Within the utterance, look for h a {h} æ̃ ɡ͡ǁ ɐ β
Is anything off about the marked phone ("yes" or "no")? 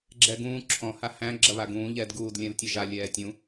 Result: no